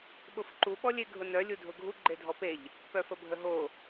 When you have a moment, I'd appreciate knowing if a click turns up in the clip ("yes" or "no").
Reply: yes